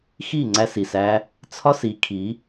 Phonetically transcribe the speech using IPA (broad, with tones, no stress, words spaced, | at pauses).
xi˦˨ŋ͡ǀæ˧si˨sæ˧ | t͡sʰɒ˦si˨˦kʰi˨˦